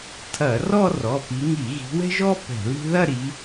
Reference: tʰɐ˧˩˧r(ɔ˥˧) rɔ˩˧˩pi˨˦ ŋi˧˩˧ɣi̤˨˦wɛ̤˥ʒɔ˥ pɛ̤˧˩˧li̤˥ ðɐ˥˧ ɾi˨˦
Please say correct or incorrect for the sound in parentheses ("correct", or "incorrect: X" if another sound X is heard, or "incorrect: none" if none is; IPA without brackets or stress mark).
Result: correct